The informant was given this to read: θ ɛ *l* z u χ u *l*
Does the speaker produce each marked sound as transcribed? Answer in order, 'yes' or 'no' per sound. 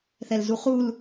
yes, yes

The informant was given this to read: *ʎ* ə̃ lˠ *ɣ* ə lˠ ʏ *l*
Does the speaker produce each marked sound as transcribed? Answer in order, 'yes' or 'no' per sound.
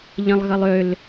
yes, yes, yes

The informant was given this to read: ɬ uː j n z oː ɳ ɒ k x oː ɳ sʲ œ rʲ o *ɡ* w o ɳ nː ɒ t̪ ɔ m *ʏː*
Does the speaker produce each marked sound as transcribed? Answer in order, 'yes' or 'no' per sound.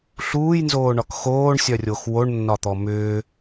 no, yes

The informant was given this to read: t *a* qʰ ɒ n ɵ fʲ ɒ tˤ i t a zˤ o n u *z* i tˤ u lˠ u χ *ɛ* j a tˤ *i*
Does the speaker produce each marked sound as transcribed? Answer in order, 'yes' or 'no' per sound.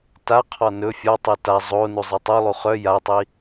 yes, no, no, yes

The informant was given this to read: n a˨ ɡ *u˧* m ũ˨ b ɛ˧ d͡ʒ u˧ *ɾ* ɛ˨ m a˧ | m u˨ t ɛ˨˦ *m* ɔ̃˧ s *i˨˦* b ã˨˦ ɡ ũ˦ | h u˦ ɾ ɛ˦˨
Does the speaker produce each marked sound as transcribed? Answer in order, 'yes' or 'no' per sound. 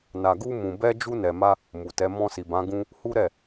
yes, no, yes, no

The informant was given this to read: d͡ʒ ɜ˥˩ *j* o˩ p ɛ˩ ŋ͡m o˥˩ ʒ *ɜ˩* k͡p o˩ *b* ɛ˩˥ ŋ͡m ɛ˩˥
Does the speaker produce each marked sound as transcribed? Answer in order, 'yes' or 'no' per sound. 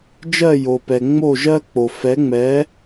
yes, no, no

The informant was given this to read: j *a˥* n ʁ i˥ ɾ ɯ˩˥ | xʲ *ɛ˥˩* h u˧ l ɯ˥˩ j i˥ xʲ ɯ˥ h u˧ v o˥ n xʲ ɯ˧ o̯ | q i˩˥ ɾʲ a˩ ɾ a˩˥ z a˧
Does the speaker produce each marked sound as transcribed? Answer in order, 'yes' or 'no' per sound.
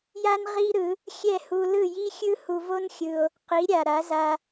yes, yes

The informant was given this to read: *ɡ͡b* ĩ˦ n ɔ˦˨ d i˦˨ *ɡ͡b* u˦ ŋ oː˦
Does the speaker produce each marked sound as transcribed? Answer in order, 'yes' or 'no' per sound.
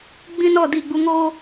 yes, yes

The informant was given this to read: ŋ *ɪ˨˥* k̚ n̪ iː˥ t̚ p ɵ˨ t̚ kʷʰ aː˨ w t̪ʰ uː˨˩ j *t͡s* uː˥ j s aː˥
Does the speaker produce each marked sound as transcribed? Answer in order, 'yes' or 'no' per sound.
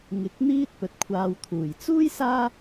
yes, yes

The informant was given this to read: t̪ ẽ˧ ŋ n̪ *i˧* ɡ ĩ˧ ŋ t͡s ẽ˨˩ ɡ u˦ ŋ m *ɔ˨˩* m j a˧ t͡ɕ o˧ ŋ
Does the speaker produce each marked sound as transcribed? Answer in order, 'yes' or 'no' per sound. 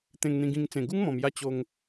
no, no

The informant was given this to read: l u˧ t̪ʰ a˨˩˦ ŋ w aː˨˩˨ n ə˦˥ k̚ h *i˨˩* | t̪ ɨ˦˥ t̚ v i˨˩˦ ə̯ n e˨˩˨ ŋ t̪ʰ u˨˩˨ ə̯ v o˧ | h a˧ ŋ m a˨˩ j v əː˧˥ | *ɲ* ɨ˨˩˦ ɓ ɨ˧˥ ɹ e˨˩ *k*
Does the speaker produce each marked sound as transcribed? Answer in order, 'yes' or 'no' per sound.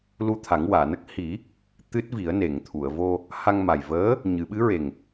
no, yes, no

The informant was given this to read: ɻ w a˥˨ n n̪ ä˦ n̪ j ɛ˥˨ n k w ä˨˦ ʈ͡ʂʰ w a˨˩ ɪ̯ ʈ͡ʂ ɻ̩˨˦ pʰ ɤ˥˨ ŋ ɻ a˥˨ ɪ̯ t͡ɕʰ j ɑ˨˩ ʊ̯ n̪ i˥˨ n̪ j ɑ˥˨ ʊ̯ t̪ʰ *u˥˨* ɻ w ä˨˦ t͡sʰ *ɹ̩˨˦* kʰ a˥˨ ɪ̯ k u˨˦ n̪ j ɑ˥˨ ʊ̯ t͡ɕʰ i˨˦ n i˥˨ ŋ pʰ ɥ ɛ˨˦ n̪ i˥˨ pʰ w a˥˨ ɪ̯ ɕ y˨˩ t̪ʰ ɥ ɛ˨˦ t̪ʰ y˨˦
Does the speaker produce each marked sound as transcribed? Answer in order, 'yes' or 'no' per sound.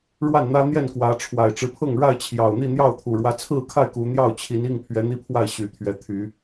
no, no

